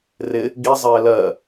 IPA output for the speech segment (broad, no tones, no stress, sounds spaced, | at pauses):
r ɪ | ɡ i zˤ ɪː l ɜ